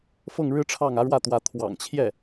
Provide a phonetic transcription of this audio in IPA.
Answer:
f ɤ˥˩ ŋ ɻ ɻ̩˥ ʈ͡ʂʰ ɑ˥˩ ŋ ä˧˥ ɻ w ä˥˩ t̪ w ä˧˥ t̪ʰ w ɑ̰˨˩ ŋ t͡ɕʰ j ɛ˥˩

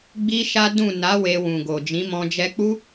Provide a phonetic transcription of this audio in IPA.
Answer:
ɡ͡b i˦ ʃ a˦ d ũ˦˨ n a˨˦ w e˧ w ũ˨ ɡ o˨ d͡ʒ ĩ˨˦ m ɔ̃˧ d͡ʒ ɛ˧ k͡p u˦

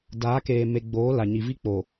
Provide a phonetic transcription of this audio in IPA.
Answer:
d aː˨˦ k eː˨ m e˨ ɡ͡b oː˨˦ l a˨ ɲ i˨ v i˦ k͡p o˨

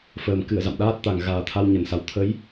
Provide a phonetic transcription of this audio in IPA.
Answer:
f əː˨˩ m k ɨ˧˩ ə̯ z a̰˧˨ m ɗ aː˦˥ t̚ t̪ a˨˩ ŋ ɣ aː˨˩ t̪ʰ a˧ w ɲ ə˨˩ n s a˨˩ w t̪ʰ ə˨˦ j

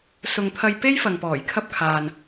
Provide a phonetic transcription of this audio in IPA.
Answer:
s ʊ˨ ŋ t̪ʰ ɐ˧ j p e˥ j f ɐ˨ ŋ p ɔː˨˩ j kʰ ɐ˥ p̚ kʰ aː˨ n

